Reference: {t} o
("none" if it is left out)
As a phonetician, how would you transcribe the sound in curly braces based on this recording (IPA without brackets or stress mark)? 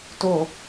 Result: t